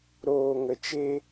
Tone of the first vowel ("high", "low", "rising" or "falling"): low